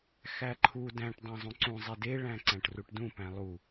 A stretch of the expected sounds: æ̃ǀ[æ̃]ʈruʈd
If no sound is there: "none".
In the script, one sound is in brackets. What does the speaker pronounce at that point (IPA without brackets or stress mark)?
æ̃